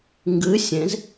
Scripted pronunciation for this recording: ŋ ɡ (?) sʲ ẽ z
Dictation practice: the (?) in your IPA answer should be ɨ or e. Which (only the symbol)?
ɨ